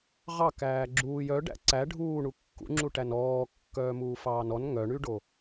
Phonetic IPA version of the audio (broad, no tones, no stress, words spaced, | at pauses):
ʁɑ kæːɡ͡ǁuːj œɖæ̰ ǀæ ɖʱuːɳu kːṵŋ͡ǁu ʈænɔː kːœːmuːfɑːnɔn ŋœɳyɖo